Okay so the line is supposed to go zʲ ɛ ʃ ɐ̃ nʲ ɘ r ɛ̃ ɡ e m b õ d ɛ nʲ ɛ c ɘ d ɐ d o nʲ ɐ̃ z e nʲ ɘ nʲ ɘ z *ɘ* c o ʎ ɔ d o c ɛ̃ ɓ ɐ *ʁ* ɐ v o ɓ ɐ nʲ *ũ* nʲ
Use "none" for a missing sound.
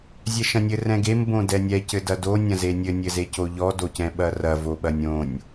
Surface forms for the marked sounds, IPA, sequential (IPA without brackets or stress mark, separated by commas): e, r, õ